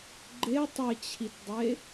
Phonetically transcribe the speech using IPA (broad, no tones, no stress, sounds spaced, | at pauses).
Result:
ɡ͡ǃ e tˤ ɘ t͡ɕʰ i t dˤ e